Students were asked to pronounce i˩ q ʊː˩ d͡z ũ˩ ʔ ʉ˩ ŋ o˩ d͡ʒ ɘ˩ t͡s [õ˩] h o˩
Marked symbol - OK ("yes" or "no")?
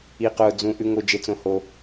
yes